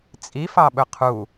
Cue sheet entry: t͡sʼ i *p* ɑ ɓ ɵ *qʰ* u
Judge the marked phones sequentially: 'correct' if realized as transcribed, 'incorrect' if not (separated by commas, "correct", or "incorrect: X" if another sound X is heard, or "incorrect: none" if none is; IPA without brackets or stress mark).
incorrect: f, correct